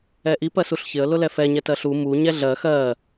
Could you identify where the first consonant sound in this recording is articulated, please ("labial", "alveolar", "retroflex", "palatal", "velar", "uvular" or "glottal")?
glottal